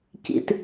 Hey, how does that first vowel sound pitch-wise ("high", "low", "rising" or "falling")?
low